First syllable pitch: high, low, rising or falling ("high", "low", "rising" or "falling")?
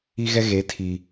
high